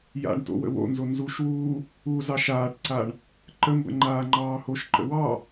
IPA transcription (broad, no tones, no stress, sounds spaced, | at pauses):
j a̰ ɳ t o̰ w ə̰ w o̰ n z o n z u ʃ w uː | u z ɑ ʃ aː ʈ ǀ a ɳ | ǃ ə m b ə̰ ŋ͡ǃ aː ŋ͡ǃ ɑː h o ʃ ǃ ə̰ w ɑ